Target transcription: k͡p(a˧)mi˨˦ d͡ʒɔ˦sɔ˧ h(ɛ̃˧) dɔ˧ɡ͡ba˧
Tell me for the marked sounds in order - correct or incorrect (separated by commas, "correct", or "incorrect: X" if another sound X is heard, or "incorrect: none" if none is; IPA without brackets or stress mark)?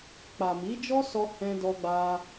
incorrect: a˨, correct